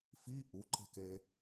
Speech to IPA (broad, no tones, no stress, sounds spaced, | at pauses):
f i ʔ u ǃ e̤ k e